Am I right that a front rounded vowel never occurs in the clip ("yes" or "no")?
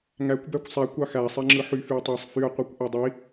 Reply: no